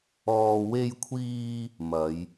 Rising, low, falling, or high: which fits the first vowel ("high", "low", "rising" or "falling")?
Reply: low